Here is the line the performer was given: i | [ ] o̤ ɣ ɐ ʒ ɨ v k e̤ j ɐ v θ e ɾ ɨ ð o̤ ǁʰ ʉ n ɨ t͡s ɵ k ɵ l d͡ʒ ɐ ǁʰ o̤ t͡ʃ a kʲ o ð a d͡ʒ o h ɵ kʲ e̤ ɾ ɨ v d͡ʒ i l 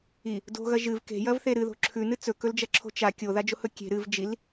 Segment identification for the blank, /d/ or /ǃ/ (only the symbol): d